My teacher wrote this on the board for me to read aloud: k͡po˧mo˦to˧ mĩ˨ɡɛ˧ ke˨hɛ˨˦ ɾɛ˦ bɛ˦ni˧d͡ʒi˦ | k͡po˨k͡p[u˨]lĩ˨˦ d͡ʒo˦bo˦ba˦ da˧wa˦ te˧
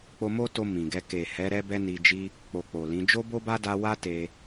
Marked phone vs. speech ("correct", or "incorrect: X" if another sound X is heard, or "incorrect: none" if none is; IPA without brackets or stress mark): incorrect: o˨